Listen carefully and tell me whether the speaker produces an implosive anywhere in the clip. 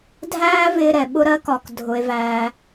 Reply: yes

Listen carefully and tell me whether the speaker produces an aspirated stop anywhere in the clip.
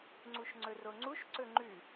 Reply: no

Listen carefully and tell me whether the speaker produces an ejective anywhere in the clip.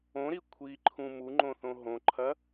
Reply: no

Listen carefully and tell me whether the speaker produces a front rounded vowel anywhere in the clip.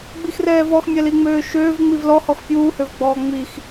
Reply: yes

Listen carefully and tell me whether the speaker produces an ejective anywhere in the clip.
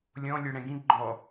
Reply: no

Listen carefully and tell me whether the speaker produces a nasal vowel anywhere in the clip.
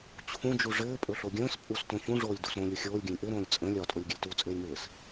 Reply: yes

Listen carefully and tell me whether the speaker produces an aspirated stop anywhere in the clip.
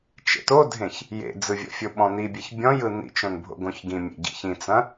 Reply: no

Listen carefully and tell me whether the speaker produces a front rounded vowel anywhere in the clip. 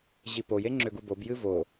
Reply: yes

